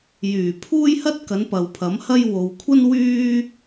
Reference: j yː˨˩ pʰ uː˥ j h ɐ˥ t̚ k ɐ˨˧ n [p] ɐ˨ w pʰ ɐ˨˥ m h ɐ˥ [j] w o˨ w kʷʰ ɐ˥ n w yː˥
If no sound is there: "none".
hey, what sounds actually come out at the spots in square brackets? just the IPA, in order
p, j

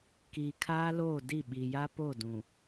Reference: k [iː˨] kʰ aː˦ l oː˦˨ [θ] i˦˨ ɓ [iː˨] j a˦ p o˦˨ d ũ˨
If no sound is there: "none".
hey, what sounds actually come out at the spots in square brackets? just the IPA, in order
iː˨, d, i˨

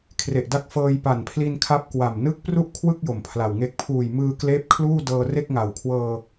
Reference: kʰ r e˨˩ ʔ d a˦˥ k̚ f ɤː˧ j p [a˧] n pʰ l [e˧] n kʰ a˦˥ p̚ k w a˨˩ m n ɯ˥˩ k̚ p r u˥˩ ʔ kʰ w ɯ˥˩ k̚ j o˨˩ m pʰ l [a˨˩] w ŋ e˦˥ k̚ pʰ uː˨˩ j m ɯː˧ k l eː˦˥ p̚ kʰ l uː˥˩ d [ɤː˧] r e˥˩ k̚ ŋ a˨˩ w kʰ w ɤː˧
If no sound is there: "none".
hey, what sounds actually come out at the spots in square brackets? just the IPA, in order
a˨˩, i˧, a˨˩, ɤː˧

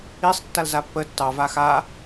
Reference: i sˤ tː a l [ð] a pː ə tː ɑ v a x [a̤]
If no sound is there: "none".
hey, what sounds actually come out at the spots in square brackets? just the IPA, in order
z, a

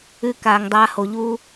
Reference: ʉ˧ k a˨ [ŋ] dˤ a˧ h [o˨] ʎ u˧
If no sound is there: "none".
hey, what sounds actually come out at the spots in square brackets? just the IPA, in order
ŋ, o˨

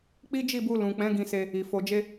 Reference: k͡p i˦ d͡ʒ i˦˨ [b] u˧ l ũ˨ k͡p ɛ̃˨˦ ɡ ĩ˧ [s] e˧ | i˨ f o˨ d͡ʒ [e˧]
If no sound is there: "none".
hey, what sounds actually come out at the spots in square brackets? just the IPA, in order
b, s, e˧

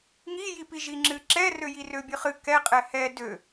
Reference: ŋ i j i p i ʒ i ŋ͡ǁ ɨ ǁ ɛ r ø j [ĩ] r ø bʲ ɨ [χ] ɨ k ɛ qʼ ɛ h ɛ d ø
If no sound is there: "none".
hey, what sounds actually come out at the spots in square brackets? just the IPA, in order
i, χ

